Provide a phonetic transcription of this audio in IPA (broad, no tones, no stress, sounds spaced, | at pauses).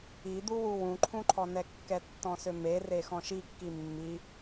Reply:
i d̪ u w u w ũ ǃʰ ũ ǃʰ ɔ n ɛ kː ɛ tː ɔ̃ s ø m e r e x ɔ̃ ʃ i kː i mː i